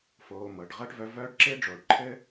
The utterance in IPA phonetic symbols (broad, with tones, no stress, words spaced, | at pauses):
foː˧mɤ˨ɖ ʁɤ˦ʈvœ˧vœː˦ɖ ǁe˦ɖ͡ʐo˨ɖ ǃʰɘ˦